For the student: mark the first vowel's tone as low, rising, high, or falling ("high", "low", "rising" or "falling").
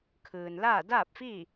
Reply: low